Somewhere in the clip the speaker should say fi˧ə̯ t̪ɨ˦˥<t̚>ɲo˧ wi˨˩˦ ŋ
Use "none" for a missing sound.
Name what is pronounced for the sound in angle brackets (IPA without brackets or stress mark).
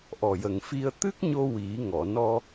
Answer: k̚